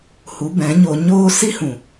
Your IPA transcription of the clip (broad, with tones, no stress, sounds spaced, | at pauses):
h u˨˦ b ɛ̃˨˦ ɲ o˧ ɲ oː˦ s i˦ h ũ˨